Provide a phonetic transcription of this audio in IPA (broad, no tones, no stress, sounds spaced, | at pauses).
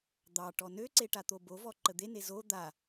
d̪ ɑ ʈ ɔ n ø ǀ e ʈ a t̪ o b o v ɔ ǃ ə d̪ e n e z o d̪ a